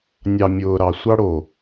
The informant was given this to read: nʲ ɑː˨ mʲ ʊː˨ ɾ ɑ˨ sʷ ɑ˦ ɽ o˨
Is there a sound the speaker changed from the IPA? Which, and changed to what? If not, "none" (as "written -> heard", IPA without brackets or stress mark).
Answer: ɑː˨ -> ɑ˨